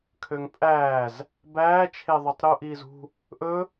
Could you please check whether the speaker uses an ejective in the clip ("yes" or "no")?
yes